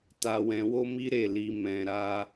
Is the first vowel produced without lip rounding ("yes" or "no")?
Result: yes